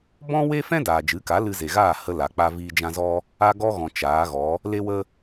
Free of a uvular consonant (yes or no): yes